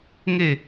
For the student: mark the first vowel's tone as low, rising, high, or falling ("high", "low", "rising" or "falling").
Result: falling